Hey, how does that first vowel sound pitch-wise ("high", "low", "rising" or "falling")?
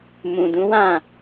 low